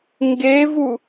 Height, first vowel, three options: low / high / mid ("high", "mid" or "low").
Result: mid